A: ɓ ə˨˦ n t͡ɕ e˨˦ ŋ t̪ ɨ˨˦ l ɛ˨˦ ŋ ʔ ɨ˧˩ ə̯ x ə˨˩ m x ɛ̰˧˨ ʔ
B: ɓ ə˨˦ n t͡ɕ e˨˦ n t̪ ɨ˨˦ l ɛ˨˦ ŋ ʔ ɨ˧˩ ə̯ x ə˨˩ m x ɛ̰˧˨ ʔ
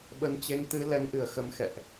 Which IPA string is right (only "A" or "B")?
A